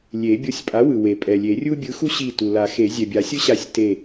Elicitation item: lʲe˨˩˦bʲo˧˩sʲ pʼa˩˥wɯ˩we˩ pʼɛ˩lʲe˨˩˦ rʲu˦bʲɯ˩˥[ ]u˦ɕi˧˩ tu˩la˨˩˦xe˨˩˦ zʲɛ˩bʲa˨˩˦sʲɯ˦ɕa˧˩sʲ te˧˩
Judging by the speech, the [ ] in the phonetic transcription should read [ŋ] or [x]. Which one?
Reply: x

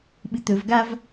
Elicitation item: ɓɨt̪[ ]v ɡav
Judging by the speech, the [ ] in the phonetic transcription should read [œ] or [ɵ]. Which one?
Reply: ɵ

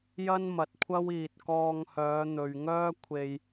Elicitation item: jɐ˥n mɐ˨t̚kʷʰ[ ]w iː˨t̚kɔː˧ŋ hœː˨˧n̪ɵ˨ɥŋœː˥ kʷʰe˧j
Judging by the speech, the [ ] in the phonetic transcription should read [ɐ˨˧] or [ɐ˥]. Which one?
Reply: ɐ˥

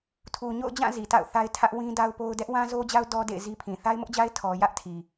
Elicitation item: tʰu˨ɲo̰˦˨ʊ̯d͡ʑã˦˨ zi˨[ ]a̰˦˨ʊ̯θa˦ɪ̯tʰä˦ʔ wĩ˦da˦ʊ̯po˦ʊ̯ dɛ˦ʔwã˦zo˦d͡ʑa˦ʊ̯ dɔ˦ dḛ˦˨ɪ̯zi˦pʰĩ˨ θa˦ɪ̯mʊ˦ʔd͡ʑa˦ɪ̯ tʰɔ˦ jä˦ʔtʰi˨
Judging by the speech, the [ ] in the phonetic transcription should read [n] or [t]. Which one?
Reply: t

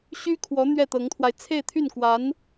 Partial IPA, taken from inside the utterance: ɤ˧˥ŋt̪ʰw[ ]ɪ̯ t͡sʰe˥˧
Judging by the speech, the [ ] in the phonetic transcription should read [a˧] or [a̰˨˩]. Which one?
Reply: a˧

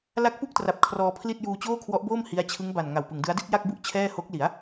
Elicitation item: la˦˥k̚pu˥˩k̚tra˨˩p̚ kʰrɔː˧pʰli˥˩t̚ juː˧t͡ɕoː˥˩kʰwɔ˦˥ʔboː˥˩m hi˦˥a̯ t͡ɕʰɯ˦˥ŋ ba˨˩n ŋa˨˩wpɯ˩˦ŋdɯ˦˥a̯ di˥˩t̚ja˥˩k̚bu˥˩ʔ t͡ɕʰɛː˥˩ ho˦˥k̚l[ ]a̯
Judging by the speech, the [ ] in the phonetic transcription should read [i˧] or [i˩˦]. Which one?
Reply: i˩˦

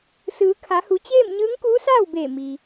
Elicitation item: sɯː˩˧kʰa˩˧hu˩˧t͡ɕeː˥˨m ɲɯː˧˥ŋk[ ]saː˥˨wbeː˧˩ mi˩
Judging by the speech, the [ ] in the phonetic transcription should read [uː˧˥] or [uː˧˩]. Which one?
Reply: uː˧˥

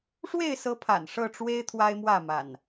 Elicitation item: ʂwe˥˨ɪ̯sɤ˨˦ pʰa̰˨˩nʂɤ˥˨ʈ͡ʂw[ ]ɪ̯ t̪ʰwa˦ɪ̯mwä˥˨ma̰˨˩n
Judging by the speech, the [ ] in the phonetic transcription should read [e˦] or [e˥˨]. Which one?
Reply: e˦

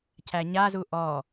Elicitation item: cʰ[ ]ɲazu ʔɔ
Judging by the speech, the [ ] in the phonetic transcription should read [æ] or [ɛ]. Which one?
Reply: æ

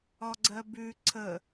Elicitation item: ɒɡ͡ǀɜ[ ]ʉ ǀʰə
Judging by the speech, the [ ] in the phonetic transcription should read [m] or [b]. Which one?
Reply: b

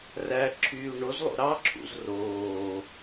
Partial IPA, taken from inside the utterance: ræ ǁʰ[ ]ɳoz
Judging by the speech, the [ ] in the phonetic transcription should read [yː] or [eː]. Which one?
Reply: yː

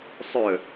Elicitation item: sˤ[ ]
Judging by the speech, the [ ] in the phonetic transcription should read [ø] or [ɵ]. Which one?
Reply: ɵ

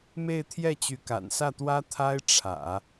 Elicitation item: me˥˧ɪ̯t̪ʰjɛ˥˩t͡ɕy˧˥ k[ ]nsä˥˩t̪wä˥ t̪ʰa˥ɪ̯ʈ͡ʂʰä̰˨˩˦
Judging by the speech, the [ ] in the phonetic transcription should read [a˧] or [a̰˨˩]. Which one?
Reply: a̰˨˩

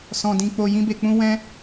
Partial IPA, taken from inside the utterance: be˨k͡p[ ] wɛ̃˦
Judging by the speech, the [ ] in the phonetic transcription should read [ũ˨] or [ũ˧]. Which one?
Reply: ũ˧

